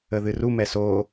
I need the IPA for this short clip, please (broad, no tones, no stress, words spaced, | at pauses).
əðɨru mɛso